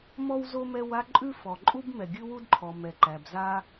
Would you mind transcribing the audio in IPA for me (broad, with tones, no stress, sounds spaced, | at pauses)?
m ɔ˥ w z o˥ m ɛ˥ w a˥ ǃʼ ʉ˥ f ɔ˩ ǃʼ u˥ b m ɛ˩ ɡʲ ʉ˥ w u˥ d ǃʰ ɔ˩ m ɛ˩ ǃ æ˩ b z a˥